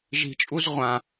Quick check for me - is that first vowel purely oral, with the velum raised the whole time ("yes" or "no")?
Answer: yes